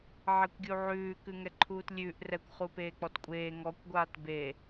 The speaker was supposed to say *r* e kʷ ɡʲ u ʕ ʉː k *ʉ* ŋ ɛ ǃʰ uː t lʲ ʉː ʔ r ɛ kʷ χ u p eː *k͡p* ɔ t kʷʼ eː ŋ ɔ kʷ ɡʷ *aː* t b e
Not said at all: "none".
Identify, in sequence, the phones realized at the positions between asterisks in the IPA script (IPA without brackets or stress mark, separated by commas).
ʕ, ʉ, k͡p, aː